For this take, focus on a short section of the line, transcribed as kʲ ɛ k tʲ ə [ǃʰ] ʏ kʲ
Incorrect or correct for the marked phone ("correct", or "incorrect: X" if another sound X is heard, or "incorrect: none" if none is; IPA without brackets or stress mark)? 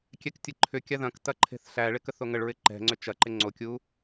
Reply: correct